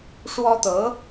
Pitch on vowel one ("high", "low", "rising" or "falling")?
high